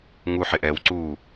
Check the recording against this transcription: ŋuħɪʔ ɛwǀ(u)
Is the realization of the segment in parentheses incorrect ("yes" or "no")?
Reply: no